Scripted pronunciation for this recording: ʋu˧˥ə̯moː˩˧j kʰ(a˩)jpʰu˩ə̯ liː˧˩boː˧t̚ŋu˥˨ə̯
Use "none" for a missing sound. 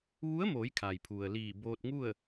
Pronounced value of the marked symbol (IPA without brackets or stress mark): a˩